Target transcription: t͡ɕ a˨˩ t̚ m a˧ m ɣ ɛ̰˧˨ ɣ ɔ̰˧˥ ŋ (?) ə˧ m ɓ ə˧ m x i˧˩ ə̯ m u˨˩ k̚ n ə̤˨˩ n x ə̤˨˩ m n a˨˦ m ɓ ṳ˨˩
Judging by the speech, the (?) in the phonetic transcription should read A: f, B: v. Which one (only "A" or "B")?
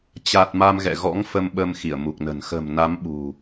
A